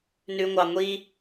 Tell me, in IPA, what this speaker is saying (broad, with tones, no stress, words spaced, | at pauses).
nʉ˨ŋʷɑ˨ŋʷi˧